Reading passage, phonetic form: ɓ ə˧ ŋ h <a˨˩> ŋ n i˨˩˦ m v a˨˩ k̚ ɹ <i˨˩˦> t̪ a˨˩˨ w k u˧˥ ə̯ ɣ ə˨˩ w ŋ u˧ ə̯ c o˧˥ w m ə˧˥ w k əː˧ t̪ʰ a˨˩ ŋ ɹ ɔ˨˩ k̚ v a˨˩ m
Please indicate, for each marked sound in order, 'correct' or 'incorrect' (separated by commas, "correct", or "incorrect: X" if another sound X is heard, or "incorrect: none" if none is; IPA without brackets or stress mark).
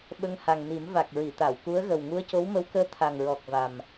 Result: correct, incorrect: i˨˩˨